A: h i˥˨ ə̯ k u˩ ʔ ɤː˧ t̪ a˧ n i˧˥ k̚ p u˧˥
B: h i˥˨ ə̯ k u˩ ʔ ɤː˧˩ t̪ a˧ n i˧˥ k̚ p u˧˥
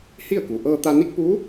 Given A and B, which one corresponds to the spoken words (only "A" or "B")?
A